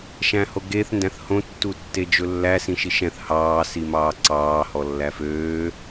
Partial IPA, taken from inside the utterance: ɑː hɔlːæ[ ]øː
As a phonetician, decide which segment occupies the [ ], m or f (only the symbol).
f